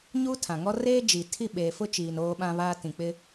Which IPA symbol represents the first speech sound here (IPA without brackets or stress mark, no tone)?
ɲ